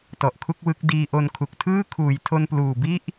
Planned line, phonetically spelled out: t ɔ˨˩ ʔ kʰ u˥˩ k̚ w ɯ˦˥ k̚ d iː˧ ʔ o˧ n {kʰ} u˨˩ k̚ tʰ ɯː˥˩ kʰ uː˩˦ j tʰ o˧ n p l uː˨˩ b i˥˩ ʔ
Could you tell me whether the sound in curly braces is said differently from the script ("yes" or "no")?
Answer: no